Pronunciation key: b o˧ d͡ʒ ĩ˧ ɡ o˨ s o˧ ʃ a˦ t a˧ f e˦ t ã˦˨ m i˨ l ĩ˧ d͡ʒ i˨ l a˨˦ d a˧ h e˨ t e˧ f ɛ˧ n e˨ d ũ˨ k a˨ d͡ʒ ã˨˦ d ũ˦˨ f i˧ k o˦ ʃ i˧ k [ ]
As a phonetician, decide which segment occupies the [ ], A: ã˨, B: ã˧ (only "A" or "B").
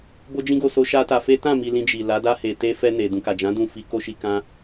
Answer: B